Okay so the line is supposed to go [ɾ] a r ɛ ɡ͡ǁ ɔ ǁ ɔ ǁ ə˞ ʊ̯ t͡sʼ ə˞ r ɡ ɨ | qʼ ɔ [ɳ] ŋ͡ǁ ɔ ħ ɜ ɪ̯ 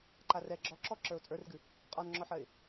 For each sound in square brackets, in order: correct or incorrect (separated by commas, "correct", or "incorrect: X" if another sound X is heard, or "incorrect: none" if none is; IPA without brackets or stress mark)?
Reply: incorrect: ǃ, incorrect: n